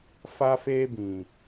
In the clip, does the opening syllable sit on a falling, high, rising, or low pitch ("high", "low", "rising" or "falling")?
high